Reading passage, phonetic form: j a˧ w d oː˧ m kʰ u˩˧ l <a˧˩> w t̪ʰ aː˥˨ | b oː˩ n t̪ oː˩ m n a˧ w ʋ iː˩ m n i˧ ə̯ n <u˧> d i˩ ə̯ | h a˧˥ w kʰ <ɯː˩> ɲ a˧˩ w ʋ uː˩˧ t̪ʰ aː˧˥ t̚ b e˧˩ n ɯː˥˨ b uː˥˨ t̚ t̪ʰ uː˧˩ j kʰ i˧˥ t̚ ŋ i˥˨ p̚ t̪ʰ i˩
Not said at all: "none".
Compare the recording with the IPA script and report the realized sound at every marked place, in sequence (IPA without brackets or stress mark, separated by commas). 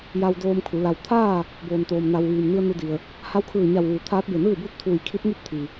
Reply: a˩, u˧, ɯː˧˩